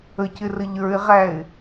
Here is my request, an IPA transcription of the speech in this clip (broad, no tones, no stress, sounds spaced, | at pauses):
ə c ɪ r ə ʎ ə˞ ɪ̯ ʁ æ ɪ̯